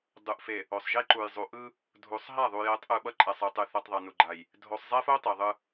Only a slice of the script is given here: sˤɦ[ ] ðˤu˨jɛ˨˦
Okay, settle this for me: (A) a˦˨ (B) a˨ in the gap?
A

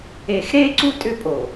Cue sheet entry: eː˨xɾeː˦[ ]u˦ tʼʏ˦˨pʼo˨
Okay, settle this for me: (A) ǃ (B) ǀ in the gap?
B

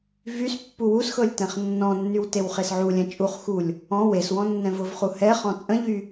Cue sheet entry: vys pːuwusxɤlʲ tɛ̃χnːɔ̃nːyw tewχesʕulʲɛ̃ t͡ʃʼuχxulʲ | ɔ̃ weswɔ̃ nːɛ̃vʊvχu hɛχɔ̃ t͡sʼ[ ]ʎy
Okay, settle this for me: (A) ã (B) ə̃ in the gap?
B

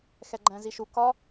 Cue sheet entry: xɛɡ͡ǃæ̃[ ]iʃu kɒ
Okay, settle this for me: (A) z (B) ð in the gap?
A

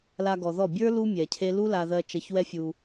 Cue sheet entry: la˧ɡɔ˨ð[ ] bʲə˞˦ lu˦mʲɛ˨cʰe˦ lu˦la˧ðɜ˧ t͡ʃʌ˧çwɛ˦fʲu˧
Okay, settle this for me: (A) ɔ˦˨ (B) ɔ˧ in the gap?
A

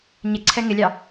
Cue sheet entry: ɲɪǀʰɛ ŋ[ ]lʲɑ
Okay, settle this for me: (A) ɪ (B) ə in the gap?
A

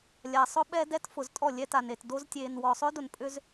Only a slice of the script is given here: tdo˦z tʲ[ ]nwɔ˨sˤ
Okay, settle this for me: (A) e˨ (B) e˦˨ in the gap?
A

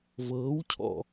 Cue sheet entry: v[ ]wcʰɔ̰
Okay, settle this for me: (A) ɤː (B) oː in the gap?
A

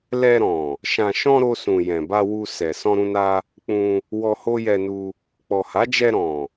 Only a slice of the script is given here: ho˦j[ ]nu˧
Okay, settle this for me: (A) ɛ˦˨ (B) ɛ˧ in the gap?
B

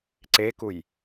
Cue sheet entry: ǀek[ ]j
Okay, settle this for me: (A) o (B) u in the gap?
B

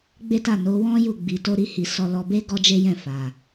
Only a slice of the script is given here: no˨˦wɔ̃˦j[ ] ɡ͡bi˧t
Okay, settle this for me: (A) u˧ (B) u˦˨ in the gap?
B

